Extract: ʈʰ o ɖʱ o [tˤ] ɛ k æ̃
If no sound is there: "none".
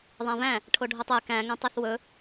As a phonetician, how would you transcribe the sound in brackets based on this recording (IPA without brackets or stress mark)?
tˤ